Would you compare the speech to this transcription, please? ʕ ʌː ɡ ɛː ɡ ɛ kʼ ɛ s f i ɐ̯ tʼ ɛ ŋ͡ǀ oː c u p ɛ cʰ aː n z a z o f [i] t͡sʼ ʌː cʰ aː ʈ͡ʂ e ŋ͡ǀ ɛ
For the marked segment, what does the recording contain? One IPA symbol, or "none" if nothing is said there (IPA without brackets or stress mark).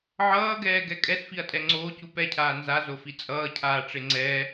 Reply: i